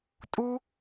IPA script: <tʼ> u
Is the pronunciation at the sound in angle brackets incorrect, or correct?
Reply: correct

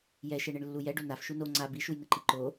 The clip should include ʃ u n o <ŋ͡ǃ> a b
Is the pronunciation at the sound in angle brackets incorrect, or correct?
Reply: incorrect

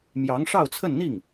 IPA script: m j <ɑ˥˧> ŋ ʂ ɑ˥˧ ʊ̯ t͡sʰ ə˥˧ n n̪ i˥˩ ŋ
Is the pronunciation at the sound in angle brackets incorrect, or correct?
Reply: incorrect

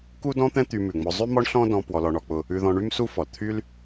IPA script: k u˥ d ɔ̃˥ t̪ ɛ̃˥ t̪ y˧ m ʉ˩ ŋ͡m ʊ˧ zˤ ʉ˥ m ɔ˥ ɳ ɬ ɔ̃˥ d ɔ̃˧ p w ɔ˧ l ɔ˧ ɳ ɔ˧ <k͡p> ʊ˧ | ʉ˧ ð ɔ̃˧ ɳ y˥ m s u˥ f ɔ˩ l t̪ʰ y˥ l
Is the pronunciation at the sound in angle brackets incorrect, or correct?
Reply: correct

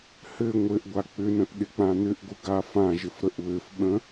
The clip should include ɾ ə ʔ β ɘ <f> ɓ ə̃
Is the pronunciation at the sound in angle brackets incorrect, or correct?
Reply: correct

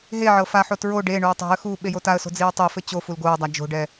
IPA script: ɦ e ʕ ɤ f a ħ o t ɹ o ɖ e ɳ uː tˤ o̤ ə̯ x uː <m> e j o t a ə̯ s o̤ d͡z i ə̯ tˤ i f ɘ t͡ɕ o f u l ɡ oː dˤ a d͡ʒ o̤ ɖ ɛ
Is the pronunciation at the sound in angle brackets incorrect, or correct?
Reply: incorrect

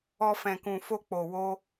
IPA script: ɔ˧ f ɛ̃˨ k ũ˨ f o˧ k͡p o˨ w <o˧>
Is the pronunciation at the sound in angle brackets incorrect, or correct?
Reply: correct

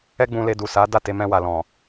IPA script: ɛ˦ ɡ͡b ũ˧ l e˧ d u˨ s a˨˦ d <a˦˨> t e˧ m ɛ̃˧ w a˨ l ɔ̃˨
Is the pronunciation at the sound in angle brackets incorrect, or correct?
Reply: correct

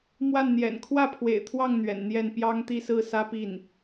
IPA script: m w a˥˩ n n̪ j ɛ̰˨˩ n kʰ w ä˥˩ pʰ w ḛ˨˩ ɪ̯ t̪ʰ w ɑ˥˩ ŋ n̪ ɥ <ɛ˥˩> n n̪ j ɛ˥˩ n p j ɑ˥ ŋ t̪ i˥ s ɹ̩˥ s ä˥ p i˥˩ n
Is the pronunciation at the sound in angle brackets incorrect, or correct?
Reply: incorrect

